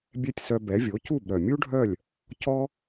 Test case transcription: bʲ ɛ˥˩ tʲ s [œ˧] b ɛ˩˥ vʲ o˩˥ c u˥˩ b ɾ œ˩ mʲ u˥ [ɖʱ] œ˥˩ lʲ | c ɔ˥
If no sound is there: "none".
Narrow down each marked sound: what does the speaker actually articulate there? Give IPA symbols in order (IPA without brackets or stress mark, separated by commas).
œ˧, ɖʱ